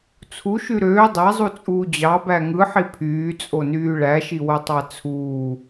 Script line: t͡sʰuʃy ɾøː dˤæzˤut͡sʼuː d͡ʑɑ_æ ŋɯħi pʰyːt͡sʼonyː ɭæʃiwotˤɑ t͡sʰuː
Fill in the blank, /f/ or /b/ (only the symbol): b